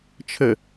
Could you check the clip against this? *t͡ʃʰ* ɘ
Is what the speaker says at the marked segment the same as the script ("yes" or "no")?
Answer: yes